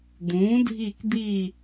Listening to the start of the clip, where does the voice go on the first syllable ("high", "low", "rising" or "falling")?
rising